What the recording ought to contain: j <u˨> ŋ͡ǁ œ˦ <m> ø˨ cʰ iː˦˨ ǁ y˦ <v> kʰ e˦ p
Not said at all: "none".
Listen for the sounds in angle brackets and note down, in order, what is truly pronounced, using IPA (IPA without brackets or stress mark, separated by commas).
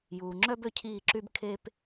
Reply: uː˨, b, b